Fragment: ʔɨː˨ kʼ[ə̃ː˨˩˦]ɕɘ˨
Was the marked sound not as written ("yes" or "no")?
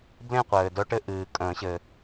no